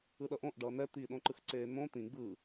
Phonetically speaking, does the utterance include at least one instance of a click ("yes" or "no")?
yes